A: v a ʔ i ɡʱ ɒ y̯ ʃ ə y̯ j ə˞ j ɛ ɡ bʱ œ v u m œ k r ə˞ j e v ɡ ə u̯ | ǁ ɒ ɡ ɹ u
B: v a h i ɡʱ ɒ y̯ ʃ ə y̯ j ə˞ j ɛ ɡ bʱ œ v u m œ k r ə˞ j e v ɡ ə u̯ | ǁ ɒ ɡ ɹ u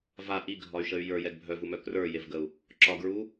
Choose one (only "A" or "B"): A